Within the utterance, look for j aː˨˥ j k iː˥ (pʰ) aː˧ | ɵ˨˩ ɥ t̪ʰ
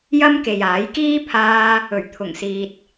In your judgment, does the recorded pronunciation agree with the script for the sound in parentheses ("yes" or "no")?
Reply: yes